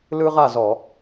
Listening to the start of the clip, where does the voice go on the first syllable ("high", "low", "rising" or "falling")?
high